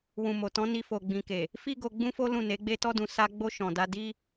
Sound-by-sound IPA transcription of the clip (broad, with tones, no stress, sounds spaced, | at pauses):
w ũ˨ m o˨ t ɔ̃˨˦ n i˧ f o˨ ɡ͡b ĩ˨ k e˨ | f i˦ ɡ o˧ ɡ͡b ũ˦ f o˦ l ũ˦˨ n e˨˦ ɡ͡b e˦ t ɔ˦ d ũ˧ s a˦ ɡ͡b o˧ ʃ ɔ̃˨ d a˧ d i˦